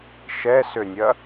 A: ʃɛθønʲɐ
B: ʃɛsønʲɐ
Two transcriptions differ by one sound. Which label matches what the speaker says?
B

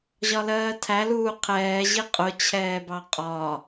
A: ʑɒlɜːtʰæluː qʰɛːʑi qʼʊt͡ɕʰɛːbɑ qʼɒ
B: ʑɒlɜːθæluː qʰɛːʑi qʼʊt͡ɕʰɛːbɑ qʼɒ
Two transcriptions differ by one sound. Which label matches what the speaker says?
A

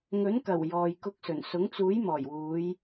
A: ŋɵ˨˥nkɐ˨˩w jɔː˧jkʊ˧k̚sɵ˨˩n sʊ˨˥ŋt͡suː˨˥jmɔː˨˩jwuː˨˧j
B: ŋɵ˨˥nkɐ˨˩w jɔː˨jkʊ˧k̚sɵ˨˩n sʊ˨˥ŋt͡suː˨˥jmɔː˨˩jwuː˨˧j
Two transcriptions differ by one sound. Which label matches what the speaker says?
B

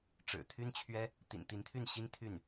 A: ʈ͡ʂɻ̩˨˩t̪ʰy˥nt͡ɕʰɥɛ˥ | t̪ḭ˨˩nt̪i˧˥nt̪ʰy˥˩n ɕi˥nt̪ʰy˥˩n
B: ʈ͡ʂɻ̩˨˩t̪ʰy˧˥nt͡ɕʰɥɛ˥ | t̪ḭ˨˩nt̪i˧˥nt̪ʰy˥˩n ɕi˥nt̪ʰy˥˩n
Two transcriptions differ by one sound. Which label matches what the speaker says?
A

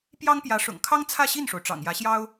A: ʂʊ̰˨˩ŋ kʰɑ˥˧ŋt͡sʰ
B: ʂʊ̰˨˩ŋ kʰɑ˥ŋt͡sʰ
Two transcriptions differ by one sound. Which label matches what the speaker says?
B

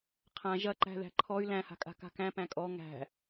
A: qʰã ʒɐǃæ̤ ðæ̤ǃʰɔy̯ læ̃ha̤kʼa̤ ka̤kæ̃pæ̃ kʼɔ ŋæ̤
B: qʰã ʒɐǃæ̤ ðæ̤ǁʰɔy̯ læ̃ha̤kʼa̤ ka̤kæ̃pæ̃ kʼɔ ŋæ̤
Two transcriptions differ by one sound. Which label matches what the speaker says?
A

